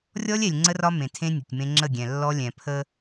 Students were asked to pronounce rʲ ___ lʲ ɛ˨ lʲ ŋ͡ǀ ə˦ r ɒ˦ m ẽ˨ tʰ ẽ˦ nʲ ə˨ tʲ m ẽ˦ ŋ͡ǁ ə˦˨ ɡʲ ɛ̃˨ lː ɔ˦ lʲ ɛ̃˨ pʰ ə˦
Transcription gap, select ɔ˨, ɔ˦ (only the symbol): ɔ˦